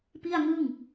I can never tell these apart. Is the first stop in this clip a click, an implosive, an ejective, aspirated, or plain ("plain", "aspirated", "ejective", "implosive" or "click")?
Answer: plain